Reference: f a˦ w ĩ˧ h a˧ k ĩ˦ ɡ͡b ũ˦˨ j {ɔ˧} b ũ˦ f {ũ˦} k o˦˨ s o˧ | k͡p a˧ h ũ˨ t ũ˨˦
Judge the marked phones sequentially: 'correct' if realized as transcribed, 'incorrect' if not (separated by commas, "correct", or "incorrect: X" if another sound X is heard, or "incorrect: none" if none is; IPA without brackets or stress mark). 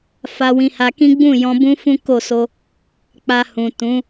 incorrect: ɔ̃˧, correct